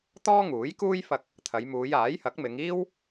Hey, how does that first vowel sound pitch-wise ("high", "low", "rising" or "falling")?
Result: high